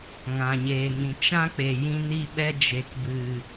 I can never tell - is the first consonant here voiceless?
no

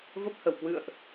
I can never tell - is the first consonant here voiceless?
no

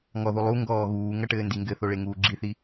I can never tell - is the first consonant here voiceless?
no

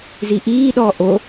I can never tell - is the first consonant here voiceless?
no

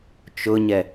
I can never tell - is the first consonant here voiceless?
yes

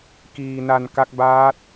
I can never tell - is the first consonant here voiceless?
yes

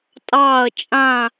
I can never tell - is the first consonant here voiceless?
yes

